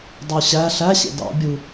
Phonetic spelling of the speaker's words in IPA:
dˤ u ɕ æ ɬ æ ɕ ḛ d ɑ̰ bʲ u

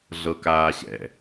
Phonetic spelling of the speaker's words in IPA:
ɮ ɤ k aː ɕ ɛ̰

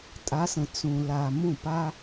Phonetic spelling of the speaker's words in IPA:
tʼ a˧˥ s ə̃˨ t͡s ũ˨ l a˨ m ũ˥˩ p a˥

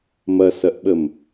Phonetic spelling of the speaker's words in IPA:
m ɐ s ɐ ʔ ɓ ə m

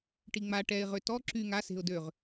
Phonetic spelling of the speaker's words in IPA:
ʈ i ŋ͡m a ʈ ɛ ɪ̯ ʁ ø t ɔ ǁ y ŋ a s e̤ ʊ̯ d ø ʁ

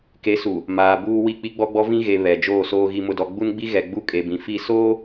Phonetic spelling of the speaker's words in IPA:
k e˨˦ s u˨ | m aː˨ b uː˦ w i˦˨ k͡p i˦ ɡ͡b ɔ˦ ɡ͡b ɔ˦ v ĩ˦ ɣ e˨ β ɛ˨ d͡ʒ oː˦˨ s oː˦ ɣ i˦ m ʊ˦ d ɔ˦ ɡ͡b u˦ n ɡ͡b i˦ ɣ ɛ˨ ɡ͡b u˦ kʼ e˨ b ĩ˨ f i˦˨ s oː˦

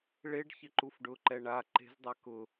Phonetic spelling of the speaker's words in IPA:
ɭ e ɖ ç ɪ ǃ u f ɖ ʊ ǃ ɛ ɳ a ǃ e̤ z dˤ a k ʊ

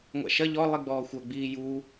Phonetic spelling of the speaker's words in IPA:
ŋʷ a̰ ʃ ɐ ʎ ɔ lˠ i ɡ͡b ɔː xʷ œ ɡ͡b iː j u

